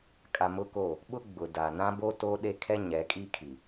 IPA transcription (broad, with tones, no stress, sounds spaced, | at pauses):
kʼ a˨ m ʊ˦ k o˦˨ | ɓ ʊ˦ ɡ͡b ʊ˨ d a˨ n ã˦ b o˦ t o˦ ɗ e˦ kʰ ɛ˦ ɲ ɛ˨˦ kʼ i˦ kʰ i˨